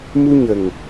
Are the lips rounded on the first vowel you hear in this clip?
yes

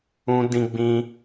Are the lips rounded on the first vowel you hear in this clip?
yes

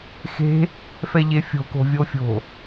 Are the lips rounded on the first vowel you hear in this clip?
no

